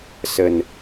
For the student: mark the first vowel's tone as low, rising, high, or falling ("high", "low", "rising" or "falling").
low